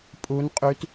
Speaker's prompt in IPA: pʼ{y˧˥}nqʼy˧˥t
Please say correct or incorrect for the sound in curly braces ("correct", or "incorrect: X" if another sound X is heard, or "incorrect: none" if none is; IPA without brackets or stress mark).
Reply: incorrect: u˧˥